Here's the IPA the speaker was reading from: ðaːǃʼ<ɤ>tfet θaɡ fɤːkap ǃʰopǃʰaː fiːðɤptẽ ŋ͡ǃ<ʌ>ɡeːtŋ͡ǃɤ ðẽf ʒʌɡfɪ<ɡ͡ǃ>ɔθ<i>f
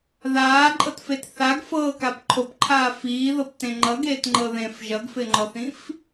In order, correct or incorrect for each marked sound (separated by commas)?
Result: correct, correct, incorrect, incorrect